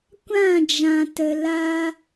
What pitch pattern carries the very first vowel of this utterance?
falling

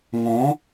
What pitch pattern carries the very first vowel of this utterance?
rising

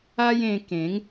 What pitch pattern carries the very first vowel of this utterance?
high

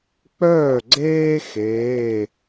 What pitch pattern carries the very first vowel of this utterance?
falling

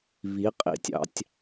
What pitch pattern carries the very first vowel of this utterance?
rising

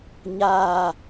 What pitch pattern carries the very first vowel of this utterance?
falling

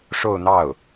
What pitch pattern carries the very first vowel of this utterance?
falling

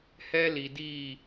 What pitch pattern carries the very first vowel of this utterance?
high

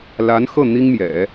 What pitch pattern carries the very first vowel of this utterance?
rising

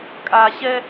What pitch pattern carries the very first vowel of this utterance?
low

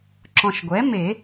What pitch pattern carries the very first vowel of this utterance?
low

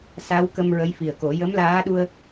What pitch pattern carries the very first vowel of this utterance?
rising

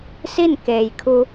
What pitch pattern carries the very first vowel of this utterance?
falling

